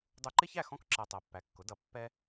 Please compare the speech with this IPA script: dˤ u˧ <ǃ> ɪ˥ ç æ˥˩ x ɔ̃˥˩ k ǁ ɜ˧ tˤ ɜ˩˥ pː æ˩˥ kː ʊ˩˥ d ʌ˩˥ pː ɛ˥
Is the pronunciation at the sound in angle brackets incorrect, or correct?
correct